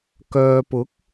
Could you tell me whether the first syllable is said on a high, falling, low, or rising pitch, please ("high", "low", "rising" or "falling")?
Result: low